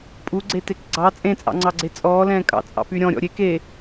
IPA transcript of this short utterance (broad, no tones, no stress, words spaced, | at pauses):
pʼuɡ͡ǀetek ɡ͡ǀɑ t͡sʼẽt͡sʼɑ̰ŋ͡ǀɑɡ͡ǀe t͡sʼɔːlɛ̃ː kʼɑ̰t͡sʼɑ̰py ɾʲɔ̃ɾʲɔ̰ ɾʲek e